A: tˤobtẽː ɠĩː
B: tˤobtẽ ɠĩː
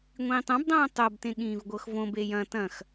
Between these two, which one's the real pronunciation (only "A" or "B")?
B